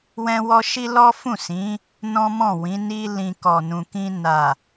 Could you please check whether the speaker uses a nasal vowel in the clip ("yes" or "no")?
yes